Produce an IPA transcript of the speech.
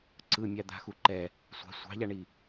ǀ ɯ mʲ a d̪ a̤ x u ǃ ɛ | sʷ a̤ sʷ ɑ̤ ʎ a ɳ i

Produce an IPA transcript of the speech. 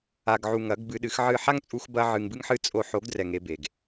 a˨ ɡ ʕ u˨ ŋ ɐ˨˦ ɡ b ɨ˧ ɗ ɨ˨˦ x ʕ ɨ˦˨ ħ a˦ ŋ t͡sʼ u˧ x b ɐ˦ ʕ ɨ˧ ŋ b ɨ˦ ŋ ħ ɨ˦ t͡sʼ o˧ ħ o˨˦ ɡ d r ɛ˨ ŋ e˧ b e˨ ɡ

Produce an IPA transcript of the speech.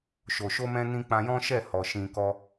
ʃ o˨ ʃ o˧ m ɛ̃˧ n ĩ˧ k͡p ã˧ j ɔ̃˦ ʃ ɛ˦˨ h ɔ˨ ʃ ĩ˧ k ɔ˦

